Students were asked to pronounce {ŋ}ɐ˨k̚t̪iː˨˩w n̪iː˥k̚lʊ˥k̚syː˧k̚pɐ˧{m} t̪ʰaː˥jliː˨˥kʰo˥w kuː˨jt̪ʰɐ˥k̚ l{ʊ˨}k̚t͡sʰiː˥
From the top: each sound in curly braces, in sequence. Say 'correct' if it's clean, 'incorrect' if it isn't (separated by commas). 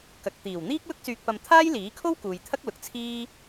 incorrect, correct, correct